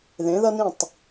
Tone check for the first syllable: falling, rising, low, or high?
rising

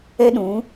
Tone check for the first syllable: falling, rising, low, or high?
high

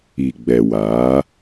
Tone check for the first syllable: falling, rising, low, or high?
low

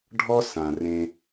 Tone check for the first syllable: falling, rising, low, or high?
high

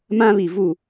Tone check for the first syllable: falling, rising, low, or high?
high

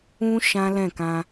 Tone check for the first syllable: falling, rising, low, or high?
high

